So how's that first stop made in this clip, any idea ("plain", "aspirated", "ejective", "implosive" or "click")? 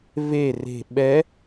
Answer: implosive